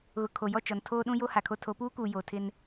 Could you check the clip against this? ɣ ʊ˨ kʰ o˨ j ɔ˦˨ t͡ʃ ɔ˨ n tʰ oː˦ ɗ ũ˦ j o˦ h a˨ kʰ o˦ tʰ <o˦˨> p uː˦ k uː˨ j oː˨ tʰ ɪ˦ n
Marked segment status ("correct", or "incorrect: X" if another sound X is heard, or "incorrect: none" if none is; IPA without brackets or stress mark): incorrect: o˨˦